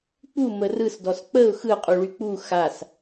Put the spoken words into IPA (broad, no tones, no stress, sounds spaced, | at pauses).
k͡p u m ə r ɯ s d ɔ s k͡p ə ʊ̯ x ɯ qʼ u ɭ y k͡p u x a s